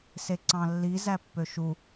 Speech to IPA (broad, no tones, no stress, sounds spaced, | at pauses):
s e ǀ ɑ̃ lː i z æ pː ø ʃ u